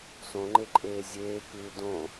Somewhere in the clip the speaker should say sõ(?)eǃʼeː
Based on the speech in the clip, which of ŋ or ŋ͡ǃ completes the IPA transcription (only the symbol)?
ŋ͡ǃ